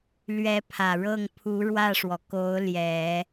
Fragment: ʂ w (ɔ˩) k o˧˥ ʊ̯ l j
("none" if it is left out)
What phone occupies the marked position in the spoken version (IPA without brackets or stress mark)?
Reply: ɔ˩